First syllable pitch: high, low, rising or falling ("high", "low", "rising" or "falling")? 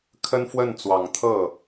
high